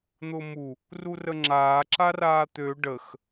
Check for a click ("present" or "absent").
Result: present